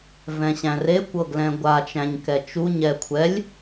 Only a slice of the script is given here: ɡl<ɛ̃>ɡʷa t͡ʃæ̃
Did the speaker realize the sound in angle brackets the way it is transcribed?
yes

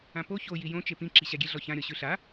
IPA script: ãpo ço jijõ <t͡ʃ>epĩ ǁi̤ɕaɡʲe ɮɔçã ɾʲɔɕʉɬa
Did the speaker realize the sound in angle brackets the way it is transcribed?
yes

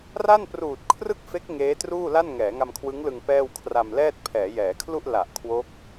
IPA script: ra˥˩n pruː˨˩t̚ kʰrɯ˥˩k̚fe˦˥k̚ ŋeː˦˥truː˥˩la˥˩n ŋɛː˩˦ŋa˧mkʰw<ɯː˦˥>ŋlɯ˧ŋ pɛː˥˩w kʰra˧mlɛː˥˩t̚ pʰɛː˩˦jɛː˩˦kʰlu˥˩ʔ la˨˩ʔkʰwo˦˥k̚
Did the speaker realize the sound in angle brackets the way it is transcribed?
no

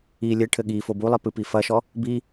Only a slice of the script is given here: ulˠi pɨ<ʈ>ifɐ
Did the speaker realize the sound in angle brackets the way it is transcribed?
no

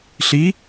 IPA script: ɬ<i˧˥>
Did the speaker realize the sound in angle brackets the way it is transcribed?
yes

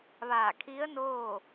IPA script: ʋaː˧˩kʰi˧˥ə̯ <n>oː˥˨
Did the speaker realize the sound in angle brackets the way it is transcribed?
yes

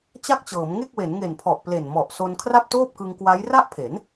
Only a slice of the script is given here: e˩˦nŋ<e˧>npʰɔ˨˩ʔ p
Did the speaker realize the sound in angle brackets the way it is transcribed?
no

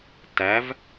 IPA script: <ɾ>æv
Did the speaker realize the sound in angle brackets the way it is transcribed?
no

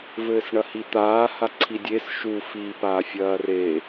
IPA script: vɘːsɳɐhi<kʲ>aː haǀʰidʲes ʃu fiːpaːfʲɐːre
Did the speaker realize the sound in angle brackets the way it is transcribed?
no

